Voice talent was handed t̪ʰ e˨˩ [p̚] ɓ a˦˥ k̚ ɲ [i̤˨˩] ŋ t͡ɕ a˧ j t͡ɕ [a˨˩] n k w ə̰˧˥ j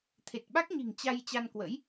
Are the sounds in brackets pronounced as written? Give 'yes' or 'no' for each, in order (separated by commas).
no, yes, no